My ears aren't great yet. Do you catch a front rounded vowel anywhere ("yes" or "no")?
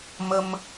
no